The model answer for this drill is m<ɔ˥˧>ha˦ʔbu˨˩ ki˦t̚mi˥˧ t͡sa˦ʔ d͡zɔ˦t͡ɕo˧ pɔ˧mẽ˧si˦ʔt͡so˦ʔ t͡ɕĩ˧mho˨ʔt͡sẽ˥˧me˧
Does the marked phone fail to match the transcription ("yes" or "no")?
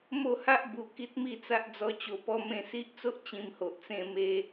yes